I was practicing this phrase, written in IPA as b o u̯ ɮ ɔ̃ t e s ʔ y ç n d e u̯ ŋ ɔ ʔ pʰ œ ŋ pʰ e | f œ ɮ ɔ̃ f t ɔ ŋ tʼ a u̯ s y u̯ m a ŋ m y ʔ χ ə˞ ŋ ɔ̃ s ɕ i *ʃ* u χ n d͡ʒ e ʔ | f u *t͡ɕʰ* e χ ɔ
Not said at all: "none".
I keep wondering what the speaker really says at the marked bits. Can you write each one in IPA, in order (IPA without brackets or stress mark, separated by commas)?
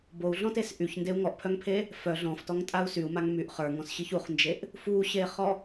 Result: ç, ɕ